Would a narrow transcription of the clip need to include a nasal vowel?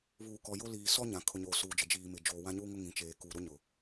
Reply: yes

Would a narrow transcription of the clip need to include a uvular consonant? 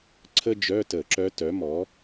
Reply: no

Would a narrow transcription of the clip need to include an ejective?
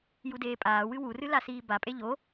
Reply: yes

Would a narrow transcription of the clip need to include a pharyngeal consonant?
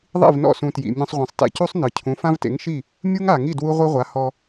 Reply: no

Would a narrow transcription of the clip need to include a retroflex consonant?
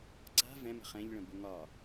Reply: yes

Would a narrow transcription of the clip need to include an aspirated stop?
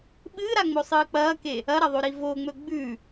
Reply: no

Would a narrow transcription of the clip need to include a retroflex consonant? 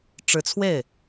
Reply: yes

